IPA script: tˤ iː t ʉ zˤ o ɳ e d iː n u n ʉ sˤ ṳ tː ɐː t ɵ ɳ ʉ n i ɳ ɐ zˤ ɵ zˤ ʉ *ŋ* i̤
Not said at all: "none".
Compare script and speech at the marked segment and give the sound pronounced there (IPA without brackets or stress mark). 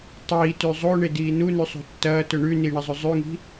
ŋ